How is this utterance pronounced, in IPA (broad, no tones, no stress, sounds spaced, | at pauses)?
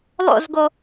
lˠ o̰ z ɡ o